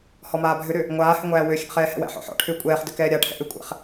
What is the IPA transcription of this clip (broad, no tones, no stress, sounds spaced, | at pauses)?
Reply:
h ɔ m aː bʱ ʏ ɾ ʏ | ŋʷ aː h ʏ ŋʷ æː w ø xʲ æ̰ χ ɛː h ɛ̰ w æ̰ ħ ɔ̰ ħ ɔ̰ ʈʰ ʏː kʷʼ ɛː χ d ʏ k ɛː ɾʲ a ʈʰ ɛ̰ ʔ ʏ kʷʼ ɛ̰ χ